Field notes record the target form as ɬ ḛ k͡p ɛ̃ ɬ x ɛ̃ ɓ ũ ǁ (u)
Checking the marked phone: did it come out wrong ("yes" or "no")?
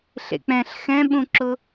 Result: yes